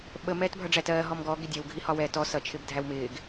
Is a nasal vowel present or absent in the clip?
absent